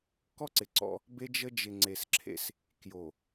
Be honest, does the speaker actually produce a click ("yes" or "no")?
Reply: yes